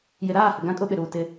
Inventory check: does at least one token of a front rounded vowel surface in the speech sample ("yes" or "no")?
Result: no